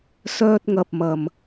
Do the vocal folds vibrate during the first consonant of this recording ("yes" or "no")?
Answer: no